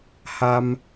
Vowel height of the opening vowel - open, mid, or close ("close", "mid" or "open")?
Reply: open